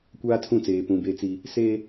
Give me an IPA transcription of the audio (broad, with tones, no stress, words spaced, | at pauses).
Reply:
kʷaː˦tʰũ˦˨t͡seː˨ pũ˨be˦t͡si˦ | se˦